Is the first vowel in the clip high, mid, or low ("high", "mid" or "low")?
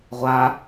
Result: low